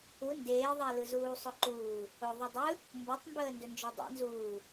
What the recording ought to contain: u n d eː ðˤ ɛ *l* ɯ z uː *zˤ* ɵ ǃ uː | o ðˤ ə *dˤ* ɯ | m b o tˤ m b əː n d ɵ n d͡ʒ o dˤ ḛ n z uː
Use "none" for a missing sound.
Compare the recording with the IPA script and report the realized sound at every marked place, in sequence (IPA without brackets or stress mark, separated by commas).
l, sˤ, dˤ